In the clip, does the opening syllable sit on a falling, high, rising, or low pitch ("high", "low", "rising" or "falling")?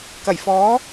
low